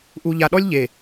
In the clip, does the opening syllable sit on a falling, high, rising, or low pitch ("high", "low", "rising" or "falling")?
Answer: low